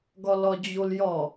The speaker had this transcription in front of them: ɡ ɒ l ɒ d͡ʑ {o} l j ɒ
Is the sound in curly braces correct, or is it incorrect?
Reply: correct